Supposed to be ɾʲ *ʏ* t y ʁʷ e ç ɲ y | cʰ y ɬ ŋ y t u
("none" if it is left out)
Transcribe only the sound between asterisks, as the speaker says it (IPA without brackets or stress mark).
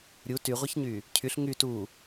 u